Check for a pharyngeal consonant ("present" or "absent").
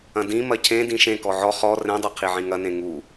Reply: present